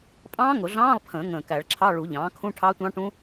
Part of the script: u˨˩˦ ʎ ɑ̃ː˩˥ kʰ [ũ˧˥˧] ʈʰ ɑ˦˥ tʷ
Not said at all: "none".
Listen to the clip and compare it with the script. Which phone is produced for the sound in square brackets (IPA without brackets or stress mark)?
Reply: ũ˧˥˧